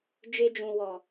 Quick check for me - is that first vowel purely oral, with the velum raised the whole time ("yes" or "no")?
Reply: yes